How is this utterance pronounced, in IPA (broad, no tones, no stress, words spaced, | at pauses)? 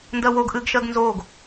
ndɜwoɡ ʔɨɡʃɜɡ nzoːɡ